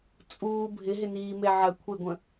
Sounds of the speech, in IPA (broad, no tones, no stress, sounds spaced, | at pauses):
t͡sʼ uː bʱ ɪ ɦ ɪ n iː m e ʕ ə kʷʰ e ɡʷ ə̃